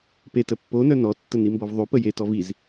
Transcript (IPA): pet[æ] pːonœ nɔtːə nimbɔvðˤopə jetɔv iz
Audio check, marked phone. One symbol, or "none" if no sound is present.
ə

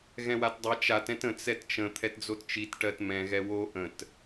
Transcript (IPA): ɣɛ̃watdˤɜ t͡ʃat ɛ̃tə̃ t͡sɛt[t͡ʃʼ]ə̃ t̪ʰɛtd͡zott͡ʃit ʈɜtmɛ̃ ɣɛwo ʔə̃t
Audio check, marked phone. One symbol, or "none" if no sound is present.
t͡ʃ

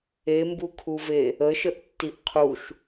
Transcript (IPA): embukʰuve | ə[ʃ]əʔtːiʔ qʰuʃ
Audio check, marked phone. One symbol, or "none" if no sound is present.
ʃ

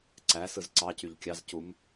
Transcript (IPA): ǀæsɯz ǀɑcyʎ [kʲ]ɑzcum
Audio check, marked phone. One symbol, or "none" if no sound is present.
kʲ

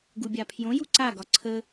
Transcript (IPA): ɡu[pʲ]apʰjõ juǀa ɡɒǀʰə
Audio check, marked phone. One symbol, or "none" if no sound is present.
bʲ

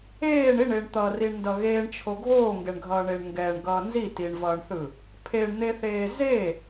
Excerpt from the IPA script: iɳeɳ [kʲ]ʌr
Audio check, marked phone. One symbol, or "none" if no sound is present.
t̪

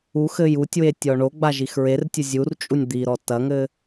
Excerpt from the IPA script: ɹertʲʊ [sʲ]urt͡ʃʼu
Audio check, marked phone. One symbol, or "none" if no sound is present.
zʲ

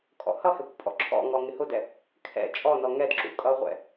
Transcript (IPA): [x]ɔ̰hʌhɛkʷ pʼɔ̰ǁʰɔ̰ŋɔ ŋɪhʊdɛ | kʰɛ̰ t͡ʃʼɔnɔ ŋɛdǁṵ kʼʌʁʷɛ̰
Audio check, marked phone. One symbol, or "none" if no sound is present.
kʼ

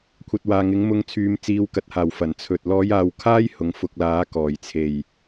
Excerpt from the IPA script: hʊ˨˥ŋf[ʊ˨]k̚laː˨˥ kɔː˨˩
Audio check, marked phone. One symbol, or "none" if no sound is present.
ʊ˧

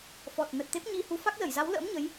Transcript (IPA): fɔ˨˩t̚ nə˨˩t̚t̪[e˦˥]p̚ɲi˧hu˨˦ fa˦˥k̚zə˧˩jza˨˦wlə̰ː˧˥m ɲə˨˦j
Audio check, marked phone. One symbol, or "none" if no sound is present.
e˦˥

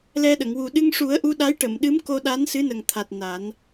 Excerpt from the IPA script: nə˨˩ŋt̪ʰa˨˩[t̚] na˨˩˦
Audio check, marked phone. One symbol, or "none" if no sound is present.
t̚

